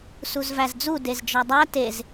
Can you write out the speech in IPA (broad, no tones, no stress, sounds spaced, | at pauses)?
s u z v æ z d͡z u d e z d͡ʒ ɒ dˤ æ t e z